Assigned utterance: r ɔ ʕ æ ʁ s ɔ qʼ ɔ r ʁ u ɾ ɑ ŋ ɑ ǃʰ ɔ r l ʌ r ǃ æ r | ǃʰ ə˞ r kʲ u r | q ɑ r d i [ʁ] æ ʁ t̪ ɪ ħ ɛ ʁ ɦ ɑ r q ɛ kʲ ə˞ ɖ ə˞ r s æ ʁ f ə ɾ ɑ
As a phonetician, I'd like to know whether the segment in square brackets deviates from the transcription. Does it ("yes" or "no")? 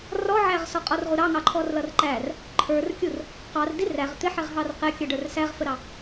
yes